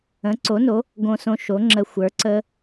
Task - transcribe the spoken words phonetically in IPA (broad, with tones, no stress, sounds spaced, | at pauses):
ə̃˩˥ ǀ o˩˥ n o˩˥ | ɡ õ˧ s õ˧ ʃ o˩˥ ŋ͡ǁ ə˧ xʷ ə˞˩˥ ǀ ə˧